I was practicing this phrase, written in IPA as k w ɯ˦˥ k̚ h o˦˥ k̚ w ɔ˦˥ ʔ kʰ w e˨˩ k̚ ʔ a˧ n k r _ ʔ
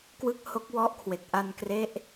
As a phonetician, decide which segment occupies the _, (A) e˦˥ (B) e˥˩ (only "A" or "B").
A